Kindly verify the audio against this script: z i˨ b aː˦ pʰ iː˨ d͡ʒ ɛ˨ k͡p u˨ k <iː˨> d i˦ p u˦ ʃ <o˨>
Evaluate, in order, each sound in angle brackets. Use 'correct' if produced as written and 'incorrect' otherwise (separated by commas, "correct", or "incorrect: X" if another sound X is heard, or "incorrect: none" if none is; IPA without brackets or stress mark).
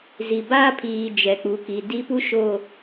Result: incorrect: i˨, correct